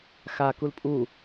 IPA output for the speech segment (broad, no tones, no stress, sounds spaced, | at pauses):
x a k u l pʼ u